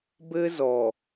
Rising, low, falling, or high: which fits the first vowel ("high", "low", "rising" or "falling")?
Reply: high